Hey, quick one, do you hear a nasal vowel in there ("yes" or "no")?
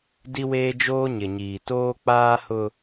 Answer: no